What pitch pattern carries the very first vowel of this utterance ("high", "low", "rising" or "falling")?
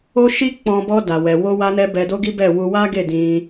high